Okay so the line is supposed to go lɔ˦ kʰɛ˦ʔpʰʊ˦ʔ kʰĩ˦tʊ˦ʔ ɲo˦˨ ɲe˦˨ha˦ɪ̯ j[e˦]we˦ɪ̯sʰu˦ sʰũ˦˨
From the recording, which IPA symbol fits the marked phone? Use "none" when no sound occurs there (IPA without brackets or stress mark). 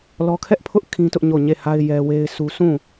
ɛ˦